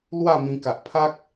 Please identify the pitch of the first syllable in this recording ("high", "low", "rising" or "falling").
falling